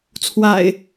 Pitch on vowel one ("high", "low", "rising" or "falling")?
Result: low